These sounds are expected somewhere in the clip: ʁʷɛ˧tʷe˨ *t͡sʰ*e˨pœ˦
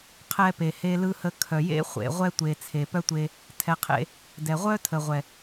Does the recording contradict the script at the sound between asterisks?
no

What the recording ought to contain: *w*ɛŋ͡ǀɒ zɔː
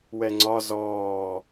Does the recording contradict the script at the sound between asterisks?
no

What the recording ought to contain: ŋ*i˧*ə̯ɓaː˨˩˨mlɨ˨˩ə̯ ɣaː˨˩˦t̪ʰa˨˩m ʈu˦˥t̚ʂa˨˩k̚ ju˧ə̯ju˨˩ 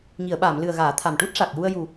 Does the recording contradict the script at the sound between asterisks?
yes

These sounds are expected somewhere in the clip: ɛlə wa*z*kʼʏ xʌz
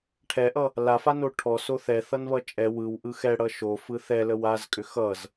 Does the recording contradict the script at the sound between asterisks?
no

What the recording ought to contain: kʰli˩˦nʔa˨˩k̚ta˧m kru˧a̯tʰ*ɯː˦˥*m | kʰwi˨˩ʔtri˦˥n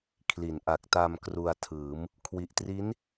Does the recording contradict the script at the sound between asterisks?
yes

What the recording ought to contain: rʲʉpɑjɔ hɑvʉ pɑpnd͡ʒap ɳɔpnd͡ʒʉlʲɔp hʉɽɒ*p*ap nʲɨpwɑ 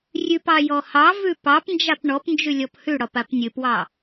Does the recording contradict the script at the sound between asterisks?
no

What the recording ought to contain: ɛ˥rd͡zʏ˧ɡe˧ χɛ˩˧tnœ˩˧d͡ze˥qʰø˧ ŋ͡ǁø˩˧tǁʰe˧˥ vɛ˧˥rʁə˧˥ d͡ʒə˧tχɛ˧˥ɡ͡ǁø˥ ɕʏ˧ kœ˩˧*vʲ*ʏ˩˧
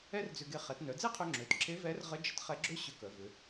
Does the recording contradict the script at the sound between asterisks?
yes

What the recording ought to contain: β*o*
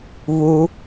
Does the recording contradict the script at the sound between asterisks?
yes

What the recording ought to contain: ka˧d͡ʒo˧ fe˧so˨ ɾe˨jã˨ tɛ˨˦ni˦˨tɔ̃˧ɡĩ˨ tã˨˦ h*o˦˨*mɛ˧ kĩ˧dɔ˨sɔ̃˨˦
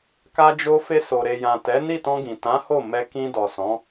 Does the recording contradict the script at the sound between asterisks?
no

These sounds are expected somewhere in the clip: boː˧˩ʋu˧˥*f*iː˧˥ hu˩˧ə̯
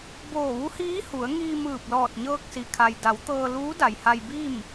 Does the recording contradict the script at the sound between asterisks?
yes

